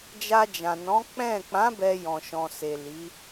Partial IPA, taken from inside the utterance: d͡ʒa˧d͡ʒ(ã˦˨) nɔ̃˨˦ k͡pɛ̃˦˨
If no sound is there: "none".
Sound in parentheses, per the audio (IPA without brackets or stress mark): ã˨